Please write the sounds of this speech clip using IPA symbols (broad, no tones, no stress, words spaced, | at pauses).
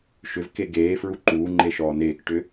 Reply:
ʃʏvke ɡeːfɹu ǃuːŋ͡ǃeʃɔː neːkʈʏ